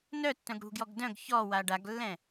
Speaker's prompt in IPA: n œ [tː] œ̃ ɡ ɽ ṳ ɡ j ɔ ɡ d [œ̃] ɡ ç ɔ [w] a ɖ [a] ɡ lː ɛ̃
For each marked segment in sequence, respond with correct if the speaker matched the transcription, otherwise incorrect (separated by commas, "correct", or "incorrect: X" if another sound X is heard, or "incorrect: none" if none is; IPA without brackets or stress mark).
correct, correct, correct, correct